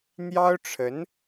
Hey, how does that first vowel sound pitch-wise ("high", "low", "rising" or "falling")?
high